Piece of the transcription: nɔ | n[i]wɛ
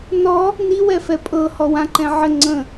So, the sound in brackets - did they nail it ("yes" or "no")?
yes